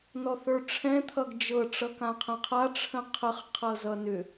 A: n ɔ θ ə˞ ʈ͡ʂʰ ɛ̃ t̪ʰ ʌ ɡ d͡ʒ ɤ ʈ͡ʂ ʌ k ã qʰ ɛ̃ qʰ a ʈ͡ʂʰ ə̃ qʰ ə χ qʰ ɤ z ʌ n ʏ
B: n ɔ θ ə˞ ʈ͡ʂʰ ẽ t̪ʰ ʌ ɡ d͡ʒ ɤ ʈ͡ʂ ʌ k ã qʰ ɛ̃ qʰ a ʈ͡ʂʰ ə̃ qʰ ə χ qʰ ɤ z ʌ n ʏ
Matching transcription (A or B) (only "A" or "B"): A